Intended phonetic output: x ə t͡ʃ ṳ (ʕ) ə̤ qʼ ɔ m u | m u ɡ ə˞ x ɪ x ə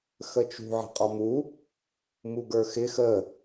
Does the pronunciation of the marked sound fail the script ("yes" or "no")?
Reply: no